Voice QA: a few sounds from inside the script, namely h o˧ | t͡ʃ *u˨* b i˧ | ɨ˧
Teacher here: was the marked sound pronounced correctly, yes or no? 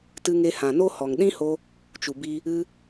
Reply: yes